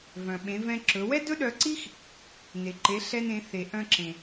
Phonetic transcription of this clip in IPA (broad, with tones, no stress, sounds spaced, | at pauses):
v œ̃˩ ɓ ẽ˩˧ v ɛ̃˧ ǁ ɵ˩˧ w ɛ˥ d ɵ˥ ɗ œ˧ ǀ i˥ x | n e˩ ǃ e˩˧ ɬ ɛ˧ n ẽ˩˧ θ e˩ ʔ œ̃˧ ǁ ẽ˩